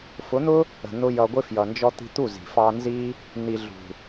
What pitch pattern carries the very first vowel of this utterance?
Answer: rising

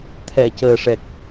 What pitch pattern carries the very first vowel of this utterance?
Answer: low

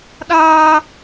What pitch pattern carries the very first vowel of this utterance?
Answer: high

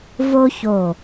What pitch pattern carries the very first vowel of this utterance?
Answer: high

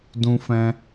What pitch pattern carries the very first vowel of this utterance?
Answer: high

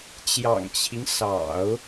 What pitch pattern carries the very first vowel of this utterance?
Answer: low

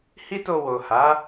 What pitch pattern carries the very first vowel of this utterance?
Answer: high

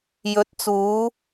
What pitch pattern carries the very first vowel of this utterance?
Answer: rising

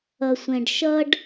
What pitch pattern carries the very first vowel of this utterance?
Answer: low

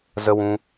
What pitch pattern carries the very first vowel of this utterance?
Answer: high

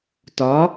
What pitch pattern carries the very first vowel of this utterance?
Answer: rising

